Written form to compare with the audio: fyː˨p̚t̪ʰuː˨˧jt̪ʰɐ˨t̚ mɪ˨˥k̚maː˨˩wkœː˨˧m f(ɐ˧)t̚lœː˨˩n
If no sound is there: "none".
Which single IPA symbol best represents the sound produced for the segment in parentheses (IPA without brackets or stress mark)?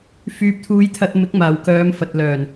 ɐ˨